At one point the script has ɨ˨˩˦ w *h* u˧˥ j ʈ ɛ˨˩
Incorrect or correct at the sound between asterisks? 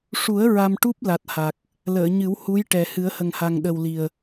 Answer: correct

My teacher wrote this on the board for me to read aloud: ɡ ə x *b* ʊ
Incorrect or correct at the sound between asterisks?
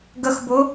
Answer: correct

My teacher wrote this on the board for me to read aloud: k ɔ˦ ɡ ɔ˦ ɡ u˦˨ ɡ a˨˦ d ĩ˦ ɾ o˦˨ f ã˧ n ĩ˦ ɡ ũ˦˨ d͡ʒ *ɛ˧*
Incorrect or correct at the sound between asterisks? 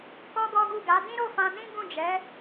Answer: incorrect: ɛ˨˦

